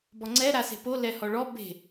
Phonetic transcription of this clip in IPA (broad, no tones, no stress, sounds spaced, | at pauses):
b ɔ ŋ͡ǀ ɛ ɾ a s e̤ p o l ɛ h ɔ ɭ ɔ b e̤